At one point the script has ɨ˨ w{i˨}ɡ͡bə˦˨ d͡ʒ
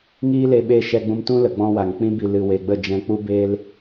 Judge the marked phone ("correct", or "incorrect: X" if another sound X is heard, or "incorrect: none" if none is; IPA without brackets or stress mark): incorrect: e˨